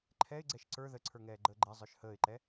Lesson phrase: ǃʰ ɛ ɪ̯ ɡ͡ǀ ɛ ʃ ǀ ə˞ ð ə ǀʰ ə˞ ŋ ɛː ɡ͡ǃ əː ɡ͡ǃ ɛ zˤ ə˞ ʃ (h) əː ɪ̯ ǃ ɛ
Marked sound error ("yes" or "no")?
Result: no